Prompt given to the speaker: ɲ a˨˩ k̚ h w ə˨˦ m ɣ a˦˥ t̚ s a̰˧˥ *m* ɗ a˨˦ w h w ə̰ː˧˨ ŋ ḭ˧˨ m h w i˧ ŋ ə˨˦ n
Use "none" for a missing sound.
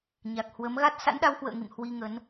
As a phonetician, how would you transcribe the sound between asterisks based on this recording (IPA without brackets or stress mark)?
n